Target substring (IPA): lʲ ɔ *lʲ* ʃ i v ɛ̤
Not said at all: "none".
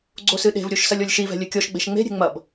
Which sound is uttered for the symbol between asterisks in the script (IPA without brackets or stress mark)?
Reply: lʲ